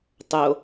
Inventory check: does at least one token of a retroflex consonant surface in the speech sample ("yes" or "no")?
no